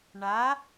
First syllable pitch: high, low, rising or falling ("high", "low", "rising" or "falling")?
rising